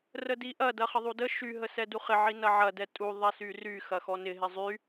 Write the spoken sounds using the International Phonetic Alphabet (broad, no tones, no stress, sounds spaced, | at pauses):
r ə d i ʔ ɐ d ɐ χ ə ðˤ u d ə ʃ y ɦ ə s ɛ d u χ ɪ ʕ i n ɐ ʕ ɐ d ɛ tʼ u ðˤ ɛ s y r y x ɐ x ɔ n ɪ ɦ ɪ zˤ y